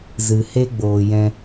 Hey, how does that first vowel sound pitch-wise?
low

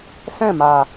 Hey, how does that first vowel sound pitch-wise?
falling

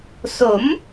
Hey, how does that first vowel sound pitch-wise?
rising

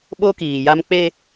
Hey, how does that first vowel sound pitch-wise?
high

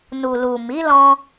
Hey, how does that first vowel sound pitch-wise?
low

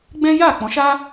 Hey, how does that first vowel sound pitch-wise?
high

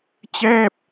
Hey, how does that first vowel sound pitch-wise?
falling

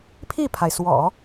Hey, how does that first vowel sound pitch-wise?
falling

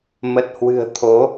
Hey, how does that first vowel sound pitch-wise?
low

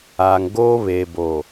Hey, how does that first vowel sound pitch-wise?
low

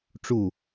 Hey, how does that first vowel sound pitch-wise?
falling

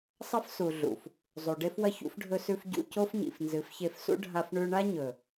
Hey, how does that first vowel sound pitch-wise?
high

